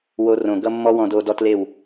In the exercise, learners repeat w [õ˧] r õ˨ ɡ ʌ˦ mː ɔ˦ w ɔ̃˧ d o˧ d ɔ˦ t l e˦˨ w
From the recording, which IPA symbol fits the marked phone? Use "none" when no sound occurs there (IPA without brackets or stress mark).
o˧